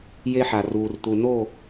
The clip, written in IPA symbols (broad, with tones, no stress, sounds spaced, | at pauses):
j e˦ ħ a˨ r uː˨ r t̪ u˨ n o˦˨